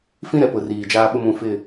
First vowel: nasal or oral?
nasal